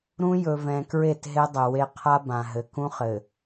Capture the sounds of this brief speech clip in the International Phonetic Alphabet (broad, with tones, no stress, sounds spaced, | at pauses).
ɾ ũ˦ j ɵ˨ v ɛ̃˨ k ɹ e˦˨ t ɦ e˦ dˤ ɘ˨ w e˦ qʰ a˦ b ã˨ ɦ ɘ˨ k ũ˦ χ ɘ˨